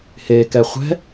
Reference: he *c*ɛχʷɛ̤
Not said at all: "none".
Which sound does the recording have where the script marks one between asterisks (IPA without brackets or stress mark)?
k